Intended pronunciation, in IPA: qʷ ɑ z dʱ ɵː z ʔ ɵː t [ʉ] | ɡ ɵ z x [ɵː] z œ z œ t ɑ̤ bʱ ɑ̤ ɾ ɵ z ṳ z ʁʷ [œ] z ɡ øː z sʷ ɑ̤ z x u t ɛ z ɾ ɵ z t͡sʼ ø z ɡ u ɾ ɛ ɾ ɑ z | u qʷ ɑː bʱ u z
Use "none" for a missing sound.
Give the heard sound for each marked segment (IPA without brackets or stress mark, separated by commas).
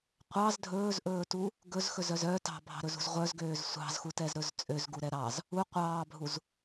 u, ɵ, œ